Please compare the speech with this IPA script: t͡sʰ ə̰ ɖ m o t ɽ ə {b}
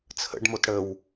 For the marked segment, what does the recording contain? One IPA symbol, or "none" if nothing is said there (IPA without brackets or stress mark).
w